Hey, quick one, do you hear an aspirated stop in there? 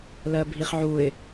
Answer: no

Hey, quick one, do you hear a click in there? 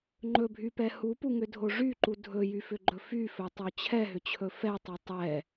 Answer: yes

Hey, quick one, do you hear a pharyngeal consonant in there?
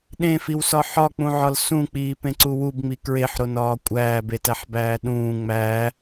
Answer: yes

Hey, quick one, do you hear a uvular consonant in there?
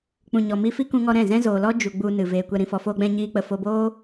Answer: no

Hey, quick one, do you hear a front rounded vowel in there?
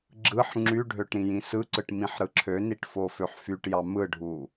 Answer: yes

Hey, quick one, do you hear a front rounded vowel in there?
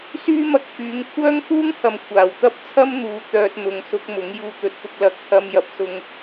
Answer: yes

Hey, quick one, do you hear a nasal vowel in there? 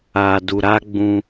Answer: yes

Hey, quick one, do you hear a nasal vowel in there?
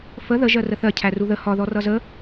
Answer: no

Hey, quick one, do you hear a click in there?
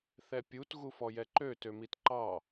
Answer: yes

